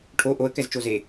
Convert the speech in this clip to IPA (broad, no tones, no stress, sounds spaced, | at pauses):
ʈʰ o ʔ o ə̯ k ɛ z t͡ʃ o z e